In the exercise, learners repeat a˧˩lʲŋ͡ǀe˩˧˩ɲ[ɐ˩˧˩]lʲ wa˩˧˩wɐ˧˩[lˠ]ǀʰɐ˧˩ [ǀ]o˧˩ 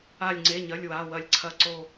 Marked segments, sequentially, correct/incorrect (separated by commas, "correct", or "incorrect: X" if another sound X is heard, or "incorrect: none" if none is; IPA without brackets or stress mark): correct, incorrect: lʲ, correct